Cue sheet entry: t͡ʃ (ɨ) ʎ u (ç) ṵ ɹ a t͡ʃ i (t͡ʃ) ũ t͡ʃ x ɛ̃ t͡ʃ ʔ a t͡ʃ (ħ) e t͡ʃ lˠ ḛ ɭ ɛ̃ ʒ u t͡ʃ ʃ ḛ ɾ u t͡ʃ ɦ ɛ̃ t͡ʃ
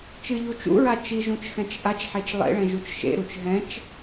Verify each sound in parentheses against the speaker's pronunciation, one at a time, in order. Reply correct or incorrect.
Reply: correct, incorrect, incorrect, correct

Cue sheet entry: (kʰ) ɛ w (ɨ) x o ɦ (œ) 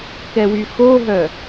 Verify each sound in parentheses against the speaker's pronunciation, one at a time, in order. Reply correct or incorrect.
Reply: incorrect, incorrect, correct

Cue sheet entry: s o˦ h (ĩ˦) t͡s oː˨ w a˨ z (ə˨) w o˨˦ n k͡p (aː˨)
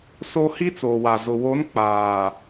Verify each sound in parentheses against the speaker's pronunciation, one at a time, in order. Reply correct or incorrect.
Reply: incorrect, incorrect, correct

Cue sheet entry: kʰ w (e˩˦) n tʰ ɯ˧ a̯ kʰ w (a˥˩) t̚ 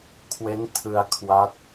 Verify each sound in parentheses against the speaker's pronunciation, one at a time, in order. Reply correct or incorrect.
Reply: incorrect, incorrect

